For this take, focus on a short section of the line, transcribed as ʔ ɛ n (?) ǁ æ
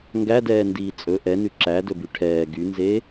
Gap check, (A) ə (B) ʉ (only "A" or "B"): B